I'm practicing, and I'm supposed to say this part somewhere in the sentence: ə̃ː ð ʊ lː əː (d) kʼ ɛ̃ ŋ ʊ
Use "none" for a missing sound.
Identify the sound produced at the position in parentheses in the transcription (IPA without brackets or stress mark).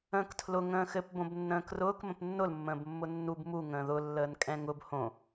n